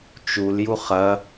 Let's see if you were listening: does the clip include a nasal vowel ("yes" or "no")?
no